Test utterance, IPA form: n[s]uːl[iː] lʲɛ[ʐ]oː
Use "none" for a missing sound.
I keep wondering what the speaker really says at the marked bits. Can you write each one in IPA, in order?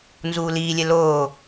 z, iː, l

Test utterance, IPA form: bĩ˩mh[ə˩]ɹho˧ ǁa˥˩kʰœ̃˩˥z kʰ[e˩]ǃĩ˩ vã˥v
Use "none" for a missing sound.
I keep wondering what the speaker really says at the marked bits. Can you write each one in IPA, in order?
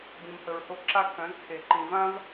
ə˩, e˩

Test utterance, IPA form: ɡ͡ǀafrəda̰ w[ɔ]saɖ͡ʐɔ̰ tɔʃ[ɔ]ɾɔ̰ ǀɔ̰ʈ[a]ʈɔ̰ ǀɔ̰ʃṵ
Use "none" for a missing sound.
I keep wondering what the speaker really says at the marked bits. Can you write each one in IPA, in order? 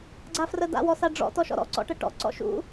ɔ, ɔ̰, ə

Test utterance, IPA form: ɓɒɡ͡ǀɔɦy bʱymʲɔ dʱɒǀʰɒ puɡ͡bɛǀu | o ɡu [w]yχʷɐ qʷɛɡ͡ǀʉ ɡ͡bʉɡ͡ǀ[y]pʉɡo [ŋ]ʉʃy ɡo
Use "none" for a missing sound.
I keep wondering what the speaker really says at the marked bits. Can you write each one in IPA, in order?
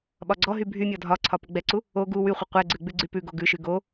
w, y, ɡ

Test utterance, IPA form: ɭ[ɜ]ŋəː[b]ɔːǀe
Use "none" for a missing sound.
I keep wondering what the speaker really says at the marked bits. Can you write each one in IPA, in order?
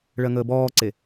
ɜ, b

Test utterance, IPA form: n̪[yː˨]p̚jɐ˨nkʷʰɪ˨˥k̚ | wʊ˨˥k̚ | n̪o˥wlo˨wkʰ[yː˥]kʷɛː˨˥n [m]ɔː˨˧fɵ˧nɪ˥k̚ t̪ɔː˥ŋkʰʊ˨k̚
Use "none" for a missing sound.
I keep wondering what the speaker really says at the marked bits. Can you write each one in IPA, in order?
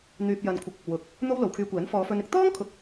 yː˨, yː˧, f

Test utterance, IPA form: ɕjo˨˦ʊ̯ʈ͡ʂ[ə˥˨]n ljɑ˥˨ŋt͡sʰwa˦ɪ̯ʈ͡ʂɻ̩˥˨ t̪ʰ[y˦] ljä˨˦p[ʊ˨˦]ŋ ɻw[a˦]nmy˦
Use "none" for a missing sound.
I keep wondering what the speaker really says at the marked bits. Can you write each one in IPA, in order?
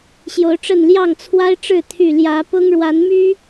ə˥˨, y˥˨, ʊ˦, a˨˦

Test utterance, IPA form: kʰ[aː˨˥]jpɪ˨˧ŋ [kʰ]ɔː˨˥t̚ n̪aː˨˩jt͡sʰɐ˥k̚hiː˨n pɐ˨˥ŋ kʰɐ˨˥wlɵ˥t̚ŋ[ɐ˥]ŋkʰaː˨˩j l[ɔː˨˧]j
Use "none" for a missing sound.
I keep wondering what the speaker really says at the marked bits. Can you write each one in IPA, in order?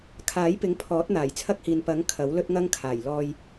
aː˨˥, pʰ, ɐ˥, ɔː˧

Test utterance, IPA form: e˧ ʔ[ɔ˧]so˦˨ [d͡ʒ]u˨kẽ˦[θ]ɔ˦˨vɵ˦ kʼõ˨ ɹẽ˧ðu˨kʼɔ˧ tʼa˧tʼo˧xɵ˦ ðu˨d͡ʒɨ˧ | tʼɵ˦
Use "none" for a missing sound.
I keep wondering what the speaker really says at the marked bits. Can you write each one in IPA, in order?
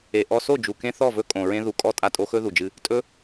ɔ˧, d͡ʒ, θ

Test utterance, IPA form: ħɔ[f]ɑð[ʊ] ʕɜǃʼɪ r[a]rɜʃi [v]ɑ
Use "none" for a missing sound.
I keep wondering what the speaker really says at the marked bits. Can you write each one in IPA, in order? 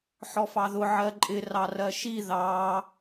f, ʊ, ɑ, ð

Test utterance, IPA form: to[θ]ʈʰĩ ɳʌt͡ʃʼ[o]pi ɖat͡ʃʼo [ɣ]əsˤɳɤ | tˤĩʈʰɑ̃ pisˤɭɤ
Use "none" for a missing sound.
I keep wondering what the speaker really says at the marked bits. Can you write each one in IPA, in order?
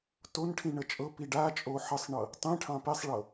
n, ɤ, ħ

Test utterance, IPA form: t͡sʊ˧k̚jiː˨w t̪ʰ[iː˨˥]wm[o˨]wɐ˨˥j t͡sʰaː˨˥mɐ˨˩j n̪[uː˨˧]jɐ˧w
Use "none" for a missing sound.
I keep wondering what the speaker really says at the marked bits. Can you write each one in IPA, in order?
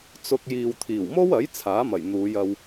iː˨˩, o˥, uː˨˧

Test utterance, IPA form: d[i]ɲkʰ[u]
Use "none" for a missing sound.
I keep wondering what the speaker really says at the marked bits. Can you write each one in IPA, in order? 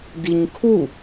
i, u

